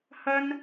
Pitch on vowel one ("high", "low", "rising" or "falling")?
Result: high